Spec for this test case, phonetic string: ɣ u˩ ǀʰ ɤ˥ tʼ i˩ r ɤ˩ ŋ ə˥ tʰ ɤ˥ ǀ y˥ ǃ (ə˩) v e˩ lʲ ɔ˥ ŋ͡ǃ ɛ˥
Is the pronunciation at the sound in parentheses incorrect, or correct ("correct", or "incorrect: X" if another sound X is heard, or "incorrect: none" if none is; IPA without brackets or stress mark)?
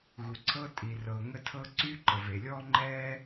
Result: correct